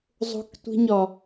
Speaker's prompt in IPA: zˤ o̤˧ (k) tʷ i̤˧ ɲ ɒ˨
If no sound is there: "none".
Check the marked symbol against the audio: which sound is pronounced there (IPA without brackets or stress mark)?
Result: k